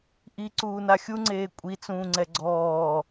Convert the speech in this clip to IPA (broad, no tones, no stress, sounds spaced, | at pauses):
ʔ i ǀ uː n a xʲ u ŋ͡ǀ eː kʷʼ i t͡s ũː ŋ͡ǀ ɛ ɡ͡ǀ ɔː